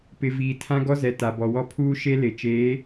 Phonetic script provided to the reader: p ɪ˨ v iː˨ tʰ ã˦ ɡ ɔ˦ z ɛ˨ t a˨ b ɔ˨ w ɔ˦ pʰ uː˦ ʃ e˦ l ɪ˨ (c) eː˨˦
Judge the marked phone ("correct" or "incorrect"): incorrect